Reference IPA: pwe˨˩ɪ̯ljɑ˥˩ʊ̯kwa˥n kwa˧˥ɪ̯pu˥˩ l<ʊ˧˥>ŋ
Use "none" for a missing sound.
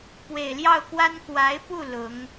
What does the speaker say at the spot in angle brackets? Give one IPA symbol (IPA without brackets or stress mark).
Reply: ʊ˧˥